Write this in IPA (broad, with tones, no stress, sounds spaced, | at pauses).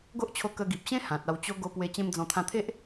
ɡ o˦ ʔ t͡ɕʰ o˧ k ə˧ ɡ i˨ p̚ ɕ ẽ˦ h ã˨ t̚ a˧ w t͡ɕ o˦ ɡ o˧ p w e˧ t͡ɕ ẽ˧ m d͡z ɔ̃˧ t̪ʰ ã˧ t̪ʰ e˦ ʔ